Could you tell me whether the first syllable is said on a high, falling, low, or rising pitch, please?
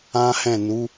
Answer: high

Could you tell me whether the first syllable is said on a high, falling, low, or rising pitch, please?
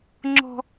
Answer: high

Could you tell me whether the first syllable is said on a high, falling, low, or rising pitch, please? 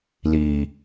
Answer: low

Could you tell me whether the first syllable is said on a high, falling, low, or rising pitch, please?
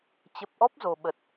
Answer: low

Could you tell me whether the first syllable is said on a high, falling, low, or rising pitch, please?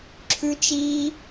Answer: high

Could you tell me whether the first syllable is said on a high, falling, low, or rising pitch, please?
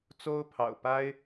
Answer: high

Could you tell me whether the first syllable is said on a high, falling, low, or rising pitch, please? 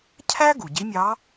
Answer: high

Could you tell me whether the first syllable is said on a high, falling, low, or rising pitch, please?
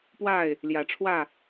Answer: falling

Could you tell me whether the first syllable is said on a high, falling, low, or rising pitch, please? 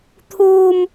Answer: high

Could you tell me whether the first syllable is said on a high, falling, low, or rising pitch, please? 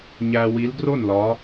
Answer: low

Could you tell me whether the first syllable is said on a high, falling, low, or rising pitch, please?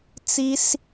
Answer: high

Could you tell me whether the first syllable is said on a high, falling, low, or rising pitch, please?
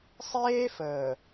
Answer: high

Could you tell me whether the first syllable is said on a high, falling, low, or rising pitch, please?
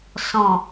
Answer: low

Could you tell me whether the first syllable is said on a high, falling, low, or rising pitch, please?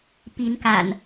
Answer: rising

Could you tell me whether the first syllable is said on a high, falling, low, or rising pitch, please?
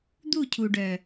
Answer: falling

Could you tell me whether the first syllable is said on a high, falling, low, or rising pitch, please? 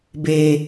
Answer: low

